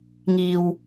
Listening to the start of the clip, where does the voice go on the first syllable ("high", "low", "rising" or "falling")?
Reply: high